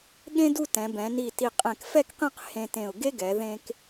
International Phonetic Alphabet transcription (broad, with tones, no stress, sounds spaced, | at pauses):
ɠ ẽ˥ d u˥˧ t ɛ̃˩˧ b ɛ̃˩˧ n i˧˩ t i˧˩ qʼ ɛ̃˧˩ k f ɛ˥˧ k q ẽ˥˧ q h ẽ˧ t ẽ˧˩ ʊ̯ ɡ e˥ ɡ ɛ˩˧ ð ẽ˧ k